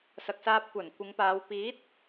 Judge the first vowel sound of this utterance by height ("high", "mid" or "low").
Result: low